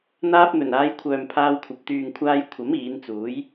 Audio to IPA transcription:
n̪ aː˧ p̚ n̪ ɵ˨˩ n aː˨˧ j kʷʰ œː˨ m pʰ aː˧ w kʷʰ ɐ˨ p̚ t̪ yː˨ ŋ kʷʰ aː˧ j kʷʰ ɐ˨˥ m iː˨˧ n t͡s uː˨˥ j

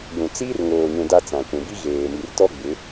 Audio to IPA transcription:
j ũ˨ t͡s iː˦ r ŋ oː˨ ɲ ũ˨ d a˦ t͡s ã˨ kʷ ũ˨ b i˦ ɣ eː˨ m i˨ r t ɔ˦ ɡ͡b ɪ˨˦

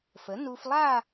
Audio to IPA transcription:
f ə˩˥ n u˧ f lˠ a˥˧

